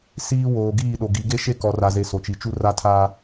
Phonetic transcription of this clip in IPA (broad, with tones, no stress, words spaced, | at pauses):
siː˦ woː˨ɡiː˦˨ɗo˨ ɡi˨˦ɡe˦ʃe˦ kɔ˨ra˨ze˨ so˨t͡ʃi˨t͡ʃu˦ ra˦tʰa˦